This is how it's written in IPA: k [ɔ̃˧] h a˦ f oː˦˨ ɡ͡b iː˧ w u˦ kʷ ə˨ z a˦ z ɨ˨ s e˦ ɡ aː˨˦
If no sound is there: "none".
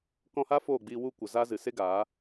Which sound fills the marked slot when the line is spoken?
ɔ̃˧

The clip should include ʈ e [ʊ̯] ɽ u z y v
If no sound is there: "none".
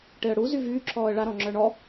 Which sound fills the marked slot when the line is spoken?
ə̯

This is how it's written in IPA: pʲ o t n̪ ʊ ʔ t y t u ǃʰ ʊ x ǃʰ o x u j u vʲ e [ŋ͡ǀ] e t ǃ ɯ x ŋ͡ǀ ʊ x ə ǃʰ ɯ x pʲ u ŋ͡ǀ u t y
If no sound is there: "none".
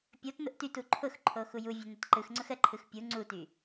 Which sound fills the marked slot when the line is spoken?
n̪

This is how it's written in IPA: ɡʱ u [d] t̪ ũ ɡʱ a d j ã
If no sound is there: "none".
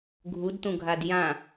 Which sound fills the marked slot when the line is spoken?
d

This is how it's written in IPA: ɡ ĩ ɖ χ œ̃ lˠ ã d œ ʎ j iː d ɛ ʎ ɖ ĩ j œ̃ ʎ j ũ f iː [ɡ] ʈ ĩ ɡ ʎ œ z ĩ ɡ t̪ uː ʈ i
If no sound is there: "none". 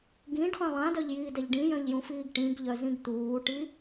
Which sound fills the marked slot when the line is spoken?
ɡ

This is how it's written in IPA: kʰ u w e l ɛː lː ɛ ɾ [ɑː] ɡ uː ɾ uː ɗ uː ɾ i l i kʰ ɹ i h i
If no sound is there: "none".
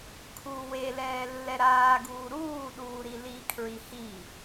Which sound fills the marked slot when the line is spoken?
aː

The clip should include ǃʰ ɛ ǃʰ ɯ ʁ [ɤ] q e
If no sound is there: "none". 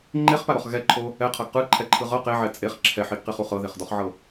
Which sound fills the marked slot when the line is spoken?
ɤ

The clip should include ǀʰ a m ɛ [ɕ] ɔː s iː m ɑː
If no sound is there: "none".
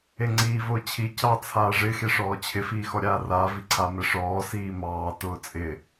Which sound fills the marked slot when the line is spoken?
ʂ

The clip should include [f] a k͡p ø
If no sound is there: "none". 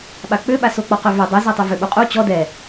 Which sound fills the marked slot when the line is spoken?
ɓ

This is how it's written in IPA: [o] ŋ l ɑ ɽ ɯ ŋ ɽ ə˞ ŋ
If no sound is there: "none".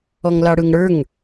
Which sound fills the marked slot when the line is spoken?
ɔ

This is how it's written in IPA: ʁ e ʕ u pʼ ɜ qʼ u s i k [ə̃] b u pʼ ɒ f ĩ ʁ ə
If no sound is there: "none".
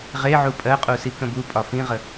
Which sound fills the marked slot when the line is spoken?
ə̃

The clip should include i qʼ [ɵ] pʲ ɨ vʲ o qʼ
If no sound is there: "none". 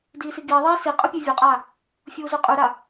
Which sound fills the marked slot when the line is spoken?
ɵ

